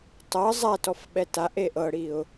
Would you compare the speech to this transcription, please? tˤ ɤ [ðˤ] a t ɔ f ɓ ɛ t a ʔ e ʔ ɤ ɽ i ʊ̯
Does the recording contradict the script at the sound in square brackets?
yes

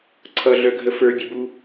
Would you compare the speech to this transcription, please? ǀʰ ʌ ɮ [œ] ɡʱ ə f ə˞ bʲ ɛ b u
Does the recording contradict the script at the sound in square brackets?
no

